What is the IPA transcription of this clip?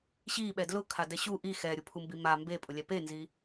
ɕ i ɓ ɛ d l ʊ kʰ a d ɛ ɕ u ʔ i x ɛ ɾʲ u pʰ u m b i m a m b e pʼ ʊ lʲ ɛ p e n z i

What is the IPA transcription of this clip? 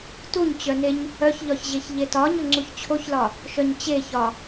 t u ɲ t͡ɕ œ n e ɲ | œ ç ʎ ɒ ç ʑ e ç ʎ e t ɒ ɲ ɵ ŋ͡ǀ u ç t͡ɕʰ o ç l ɒ | ʃ œ ɲ t͡ɕ e ç ɒ

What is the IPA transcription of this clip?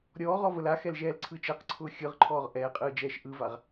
ɾʲ ɔː ʁ ɔ v ə l a x ɛ l ʒ ɛː l ǀʰ ɯː t͡ʃ ɛ q ǀʰ ʊː xʲ ɯ ʁ ǃʰ ɔː ʁ ʔ ɛː qʼ ɯː d͡ʒ ɛː ʃ ʔ ɯ v a ʁ

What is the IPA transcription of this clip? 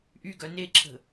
ʔ y ɡ œ n e ǁʰ ə̤

